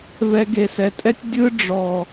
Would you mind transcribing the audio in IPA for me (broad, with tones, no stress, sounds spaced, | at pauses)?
v ɛ˧ ɡ e˨ s ɛ˨ tʼ ɛ˦ tʲ dʲ ɯ˦ ɖ͡ʐ ɔ˨